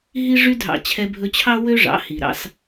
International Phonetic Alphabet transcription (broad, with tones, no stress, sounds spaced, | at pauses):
ɦ i˦ ʐ y˦ dʱ ɑ̰˧ t͡ɕʰ ɛ˧ bʱ ɵ˧ t͡ɕʰ ɑ˦ w ø˦ ʐ ɑ̰˨˦ h i˨ ɾ ɑ̰˧ s